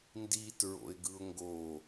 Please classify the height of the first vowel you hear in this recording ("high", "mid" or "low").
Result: high